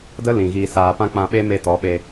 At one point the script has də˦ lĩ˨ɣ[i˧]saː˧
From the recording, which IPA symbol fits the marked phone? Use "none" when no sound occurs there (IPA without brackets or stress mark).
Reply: iː˧